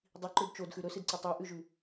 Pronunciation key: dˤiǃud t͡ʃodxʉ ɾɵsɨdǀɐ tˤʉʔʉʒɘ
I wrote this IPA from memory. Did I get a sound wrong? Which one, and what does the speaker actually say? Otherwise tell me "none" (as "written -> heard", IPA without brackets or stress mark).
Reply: ɘ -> ʉ